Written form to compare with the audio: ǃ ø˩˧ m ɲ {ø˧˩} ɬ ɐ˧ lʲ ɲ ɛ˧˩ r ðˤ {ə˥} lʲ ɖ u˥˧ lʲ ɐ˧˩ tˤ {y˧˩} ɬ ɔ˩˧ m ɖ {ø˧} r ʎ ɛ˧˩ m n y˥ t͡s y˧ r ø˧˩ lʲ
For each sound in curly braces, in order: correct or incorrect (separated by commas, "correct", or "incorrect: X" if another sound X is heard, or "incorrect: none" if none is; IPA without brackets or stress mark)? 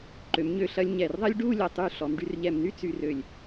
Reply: correct, incorrect: ɐ˥, correct, incorrect: y˧